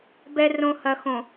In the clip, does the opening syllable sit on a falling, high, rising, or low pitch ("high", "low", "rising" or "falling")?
low